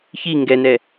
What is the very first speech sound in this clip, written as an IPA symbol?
ç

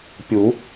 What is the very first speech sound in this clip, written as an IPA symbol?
pʲ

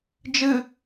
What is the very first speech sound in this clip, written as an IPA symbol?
d͡ʒ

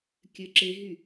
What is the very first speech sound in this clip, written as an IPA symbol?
kʲ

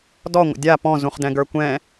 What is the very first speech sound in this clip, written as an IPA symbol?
d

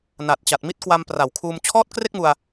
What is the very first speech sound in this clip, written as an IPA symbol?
n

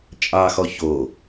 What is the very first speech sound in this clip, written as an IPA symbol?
t͡ʃʼ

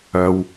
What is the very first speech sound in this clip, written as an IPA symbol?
ɐ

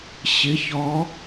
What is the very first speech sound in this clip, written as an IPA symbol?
ɕ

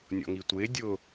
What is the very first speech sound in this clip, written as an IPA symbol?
nʲ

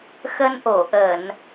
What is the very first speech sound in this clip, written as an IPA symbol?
x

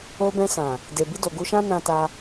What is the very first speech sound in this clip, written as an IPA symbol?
o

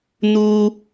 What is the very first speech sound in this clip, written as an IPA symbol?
n̪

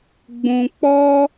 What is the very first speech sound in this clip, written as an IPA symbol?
ɡ͡b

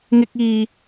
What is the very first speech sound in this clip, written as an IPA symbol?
ŋ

